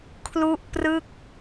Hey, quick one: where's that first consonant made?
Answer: velum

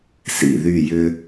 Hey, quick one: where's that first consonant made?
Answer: tongue tip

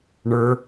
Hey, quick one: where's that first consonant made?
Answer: retroflex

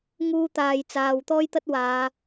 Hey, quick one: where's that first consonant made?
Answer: velum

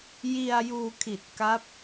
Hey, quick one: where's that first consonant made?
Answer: palate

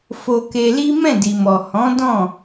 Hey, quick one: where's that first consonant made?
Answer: lips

